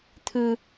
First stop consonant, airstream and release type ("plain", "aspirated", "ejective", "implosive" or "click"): aspirated